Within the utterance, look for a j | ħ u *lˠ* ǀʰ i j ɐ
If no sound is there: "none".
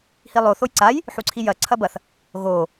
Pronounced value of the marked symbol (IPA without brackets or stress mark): none